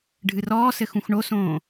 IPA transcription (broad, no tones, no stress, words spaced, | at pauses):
ɖʱɨrɔːsɘ xũxɳosõː